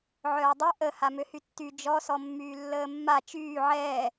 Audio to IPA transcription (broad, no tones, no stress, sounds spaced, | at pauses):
ʕ œː dˤ ɛ ʔ ə h a m ø h y tː y d͡ʒ ɔ s ɔ mː yː lː əː mː a t͡ʃ yː ʕ ɛː